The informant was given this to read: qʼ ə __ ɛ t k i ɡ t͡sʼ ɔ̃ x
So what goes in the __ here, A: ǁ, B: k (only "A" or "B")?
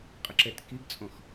A